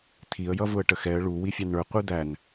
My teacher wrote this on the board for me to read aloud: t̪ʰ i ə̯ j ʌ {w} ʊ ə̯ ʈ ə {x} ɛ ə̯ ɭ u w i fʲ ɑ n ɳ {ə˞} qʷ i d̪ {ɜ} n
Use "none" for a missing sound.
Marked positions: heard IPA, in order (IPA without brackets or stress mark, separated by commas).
v, x, ə˞, æ